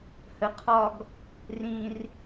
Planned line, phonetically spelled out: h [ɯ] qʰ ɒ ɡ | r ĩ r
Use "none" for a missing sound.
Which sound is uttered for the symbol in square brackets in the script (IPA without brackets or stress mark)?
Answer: ə